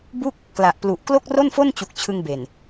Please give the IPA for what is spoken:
b u˥˩ k̚ | k l a˨˩ ʔ p l u˨˩ ʔ k l o˥˩ k̚ r o˥˩ n f o˥˩ n t͡ɕ u˨˩ k̚ t͡ɕʰ ɯ˧ ŋ b e˨˩ n

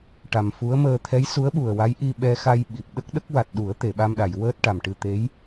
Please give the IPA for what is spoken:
ʈ a˨˩ m f u˧˥ ə̯ m əː˧ t̪ʰ ɛ˧˥ j s u˧˥ ə̯ ɓ u˨˩ ə̯ w a˧˥ j ʔ i˧ ɓ ɛ˧ x a˧ j ɓ i˨˩ p̚ ɗ ə˦˥ k̚ ɗ ə˦˥ k̚ w a˨˩ t̚ ɗ u˨˩˦ ə̯ t̪ e˨˩˨ ɓ a˧ m ɗ a˨˩˨ j w əː˦˥ t̚ ʈ a˨˩ m ʈ ɨ˧ t̪ e˧˥ j

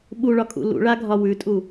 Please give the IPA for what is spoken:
ɓ u ɭ ɒ kʼ ṵ l ṵ ɭ a ɡʱ ɒ w ʉ tʼ u

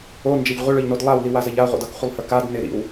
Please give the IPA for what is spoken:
o n d͡ʒ ɐ ʎ ʁʷ ɪ ɭ ə˞ ʎ n o d lˠ a w l i w a z ɐ ʎ a ʁʷ a̰ d ʌ k χʷ ɪ lˠ h ə˞ k a d n ɪ ɾ ḭ w

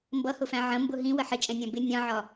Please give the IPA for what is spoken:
m b ʌ h ʊ f æ̃ ʕ ə̃ m b ʊ ɦ ĩ w ə ħ ɪ t͡ʃʼ ɛ̃ nʲ æ̃ b ɪ nʲ ɑ̃ ʕ ɒ

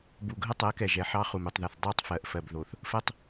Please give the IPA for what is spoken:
b u˨ ɡʱ ə˦ tˤ ɜ˨˦ k ɛ˨ ʒ ɛ˨ ħ ɑ˦ χ u˨ m u˨ tˤ ð ɛ˨ θ dˤ ɑ˦˨ tˤ f ɜ˨ ʔ f ɜ˨ b ð o˨ θ | f ɜ˦ tˤ

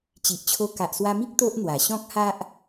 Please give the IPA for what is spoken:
t͡ɕ i˨ ʔ t͡ɕʰ o˧ k a˨ ʔ s w a˧ m i˦ k̚ t̪ o˦ ʔ n̪ w a˨˩ ɕ ɔ̃˦ k̚ h a˦ ʔ

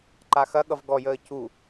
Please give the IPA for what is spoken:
ǃ a x ɐ ɠ ʌ v ɡ ɔ j əː c u

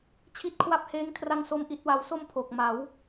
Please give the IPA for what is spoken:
t͡ɕʰ i˦˥ t̚ kʰ w a˦˥ p̚ h eː˦˥ ŋ kʰ r a˥˩ ŋ s o˥˩ m ʔ i˦˥ t̚ w a˧ w s o˥˩ m pʰ o˨˩ k̚ m a˩˦ w

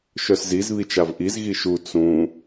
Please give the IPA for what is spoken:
ʃ œ s z i z β i t͡ʃ a v ʔ i z ɣ i ʃ u t͡s ũ

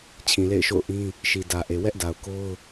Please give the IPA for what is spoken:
t͡ɕʰ ĩ˨ l ḛ˦˨ ɪ̯ ʃ o̰˦˨ ʊ̯ ʔ ĩ˦ | ʃ i˨ d ä˨ ʔ e˨ w ɛ˦ ʔ d a˨ ʊ̯ k o˦ ʊ̯

